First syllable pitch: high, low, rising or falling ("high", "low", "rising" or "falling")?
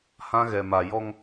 high